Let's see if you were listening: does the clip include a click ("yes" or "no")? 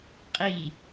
no